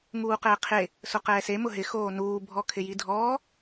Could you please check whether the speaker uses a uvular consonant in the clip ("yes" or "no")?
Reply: yes